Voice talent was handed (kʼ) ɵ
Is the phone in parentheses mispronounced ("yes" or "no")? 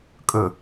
no